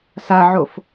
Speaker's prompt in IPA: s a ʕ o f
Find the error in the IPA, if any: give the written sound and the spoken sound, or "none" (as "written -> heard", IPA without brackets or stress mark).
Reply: none